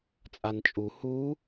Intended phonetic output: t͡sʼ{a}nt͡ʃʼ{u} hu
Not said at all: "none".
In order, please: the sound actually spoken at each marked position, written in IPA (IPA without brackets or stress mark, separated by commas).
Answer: a, u